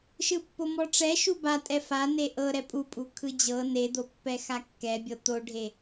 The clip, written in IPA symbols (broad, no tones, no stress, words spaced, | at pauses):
ʃɯpːomɔʈ͡ʂɛ ʃuba tʼɛfa neʔɤɾɛ pʼupʼu kʰɯd͡ʑɤ ned̪opːɛ xakːɛbʲɤ t̪oɖʱe